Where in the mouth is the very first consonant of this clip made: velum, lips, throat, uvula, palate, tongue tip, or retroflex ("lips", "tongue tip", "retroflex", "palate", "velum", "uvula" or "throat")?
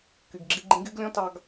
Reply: velum